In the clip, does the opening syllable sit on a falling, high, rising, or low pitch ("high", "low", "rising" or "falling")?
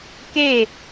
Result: falling